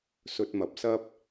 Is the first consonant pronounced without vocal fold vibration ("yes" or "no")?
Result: yes